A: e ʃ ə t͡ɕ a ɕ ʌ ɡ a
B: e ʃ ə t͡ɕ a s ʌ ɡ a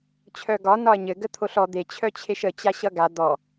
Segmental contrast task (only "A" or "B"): A